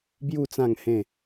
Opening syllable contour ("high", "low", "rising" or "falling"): falling